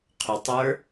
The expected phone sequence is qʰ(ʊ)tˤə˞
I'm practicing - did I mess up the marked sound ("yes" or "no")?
no